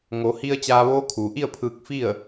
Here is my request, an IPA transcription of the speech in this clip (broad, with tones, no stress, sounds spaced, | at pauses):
ŋ o˩˧ h i˧ ə̯ t͡ɕ aː˧ ʋ oː˧˥ kʰ uː˩ ʔ i˥˨ ə̯ pʰ ɯː˧ k̚ f i˥˨ ə̯